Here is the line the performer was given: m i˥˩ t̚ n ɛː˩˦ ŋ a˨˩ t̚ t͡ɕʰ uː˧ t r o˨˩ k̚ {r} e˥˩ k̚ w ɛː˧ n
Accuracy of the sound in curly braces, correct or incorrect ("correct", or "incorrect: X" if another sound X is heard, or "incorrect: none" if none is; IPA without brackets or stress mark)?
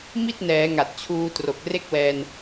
correct